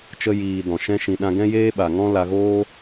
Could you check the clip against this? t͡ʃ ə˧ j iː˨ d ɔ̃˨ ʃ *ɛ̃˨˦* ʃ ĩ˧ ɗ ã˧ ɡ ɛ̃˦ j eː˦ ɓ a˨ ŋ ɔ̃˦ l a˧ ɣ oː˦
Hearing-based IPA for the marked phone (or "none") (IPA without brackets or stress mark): ɛ̃˦